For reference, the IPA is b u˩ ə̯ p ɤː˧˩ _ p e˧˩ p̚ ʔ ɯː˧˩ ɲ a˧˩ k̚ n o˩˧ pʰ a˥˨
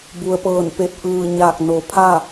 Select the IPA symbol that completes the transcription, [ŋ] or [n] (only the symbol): n